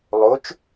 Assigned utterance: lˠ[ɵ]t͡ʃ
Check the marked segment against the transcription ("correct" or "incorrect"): incorrect